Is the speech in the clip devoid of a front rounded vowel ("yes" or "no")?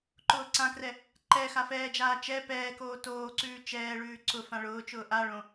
yes